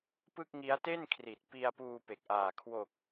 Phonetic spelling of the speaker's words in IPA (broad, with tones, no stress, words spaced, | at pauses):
pɯ˥˩k̚ ŋi˦˥a̯te˥˩n kʰri˨˩t̚pi˧a̯ puː˧pe˨˩k̚ʔaː˨˩ kʰwo˨˩k̚